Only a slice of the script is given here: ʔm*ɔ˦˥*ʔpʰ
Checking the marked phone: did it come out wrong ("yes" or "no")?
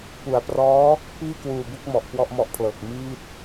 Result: no